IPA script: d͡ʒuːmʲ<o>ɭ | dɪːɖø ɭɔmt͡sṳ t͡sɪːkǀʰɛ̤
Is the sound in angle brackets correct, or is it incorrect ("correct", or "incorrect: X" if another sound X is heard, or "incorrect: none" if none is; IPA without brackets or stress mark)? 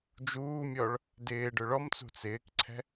incorrect: ɔ